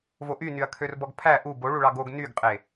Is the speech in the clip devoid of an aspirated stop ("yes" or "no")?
no